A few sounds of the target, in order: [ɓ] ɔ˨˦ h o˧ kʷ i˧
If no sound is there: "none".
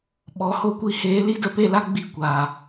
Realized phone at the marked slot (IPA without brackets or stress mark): ɓ